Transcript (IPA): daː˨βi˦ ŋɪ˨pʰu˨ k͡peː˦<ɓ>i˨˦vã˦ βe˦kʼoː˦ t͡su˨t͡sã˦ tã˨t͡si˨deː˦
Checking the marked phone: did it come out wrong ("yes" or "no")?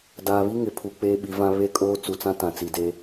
no